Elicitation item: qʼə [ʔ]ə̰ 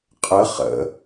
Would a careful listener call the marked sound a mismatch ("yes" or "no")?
yes